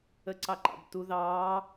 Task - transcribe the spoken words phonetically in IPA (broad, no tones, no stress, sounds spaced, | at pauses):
ə ǀ ɑ ǃ ɑ̰ b t u ð ɑː